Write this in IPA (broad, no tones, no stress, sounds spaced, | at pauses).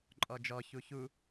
ǃʼ ɔ d͡ʒ ɔ ç u ç u